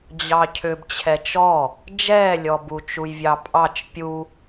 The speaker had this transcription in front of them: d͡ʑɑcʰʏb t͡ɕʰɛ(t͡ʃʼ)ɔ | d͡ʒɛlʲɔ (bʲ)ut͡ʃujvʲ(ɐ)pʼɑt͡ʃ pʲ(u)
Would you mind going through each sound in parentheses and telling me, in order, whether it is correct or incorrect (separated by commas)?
incorrect, incorrect, incorrect, correct